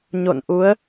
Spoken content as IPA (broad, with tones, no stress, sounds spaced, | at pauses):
ɲ o̰˧˨ n ʔ u˨˦ ə̯